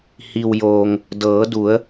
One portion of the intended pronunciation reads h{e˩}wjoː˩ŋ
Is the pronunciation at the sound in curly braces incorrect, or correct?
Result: incorrect: i˩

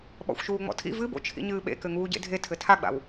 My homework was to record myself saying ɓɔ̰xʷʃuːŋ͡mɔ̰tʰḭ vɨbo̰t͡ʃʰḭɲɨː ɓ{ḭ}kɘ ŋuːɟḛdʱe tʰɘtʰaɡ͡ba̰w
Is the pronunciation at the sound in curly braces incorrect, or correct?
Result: incorrect: ḛ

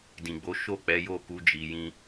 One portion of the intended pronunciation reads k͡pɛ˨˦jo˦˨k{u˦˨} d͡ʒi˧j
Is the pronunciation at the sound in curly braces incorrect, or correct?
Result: incorrect: u˨˦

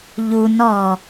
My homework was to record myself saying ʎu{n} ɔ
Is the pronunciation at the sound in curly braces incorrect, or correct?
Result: correct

